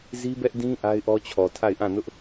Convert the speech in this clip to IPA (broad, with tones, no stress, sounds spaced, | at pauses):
z i˦ b ɛ˦ ʔ d ĩ˦ ʔ a˦ ɪ̯ ʔ ɔ˦ t͡ɕʰ ɔ˨ tʰ a˦˨ ɪ̯ ʔ ã˦˨ n ʊ˦ ʔ